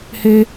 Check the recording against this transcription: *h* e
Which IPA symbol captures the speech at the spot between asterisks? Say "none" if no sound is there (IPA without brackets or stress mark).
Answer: h